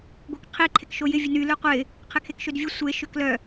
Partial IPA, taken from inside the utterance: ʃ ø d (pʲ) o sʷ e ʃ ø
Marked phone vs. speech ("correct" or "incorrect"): incorrect